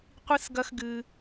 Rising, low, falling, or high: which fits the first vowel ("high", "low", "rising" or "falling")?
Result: high